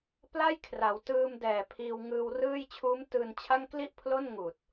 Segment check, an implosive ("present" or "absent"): absent